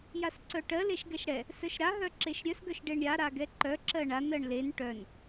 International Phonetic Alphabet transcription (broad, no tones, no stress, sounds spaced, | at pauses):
j a s ǀ œ ʈ ɜ l e ʃ ɡ ɛ ʃ ɽ ɛ | s œ ʃ ɾ a ɦ œ ǁ e ʃ ɾʲ œ s ɡ œ ʃ ɖ e ɳ ɾʲ a ɾ a ɡ ɛ ǃ œ ǁ ɜ ɳ a n ɜ ɳ l e n ʈ œ n